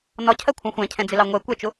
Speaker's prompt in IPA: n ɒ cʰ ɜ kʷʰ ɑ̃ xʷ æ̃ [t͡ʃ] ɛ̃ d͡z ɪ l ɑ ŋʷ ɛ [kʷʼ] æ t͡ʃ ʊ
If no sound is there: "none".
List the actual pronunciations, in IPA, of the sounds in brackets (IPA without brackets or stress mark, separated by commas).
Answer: cʰ, kʷ